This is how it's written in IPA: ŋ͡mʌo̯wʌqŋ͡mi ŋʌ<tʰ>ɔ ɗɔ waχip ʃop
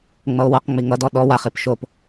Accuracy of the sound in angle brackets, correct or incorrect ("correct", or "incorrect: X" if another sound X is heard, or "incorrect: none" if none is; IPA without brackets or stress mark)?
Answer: incorrect: d